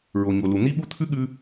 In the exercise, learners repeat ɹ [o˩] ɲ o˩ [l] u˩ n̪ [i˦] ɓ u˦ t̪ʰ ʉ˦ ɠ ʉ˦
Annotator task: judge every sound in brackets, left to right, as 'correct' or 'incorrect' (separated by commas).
correct, correct, correct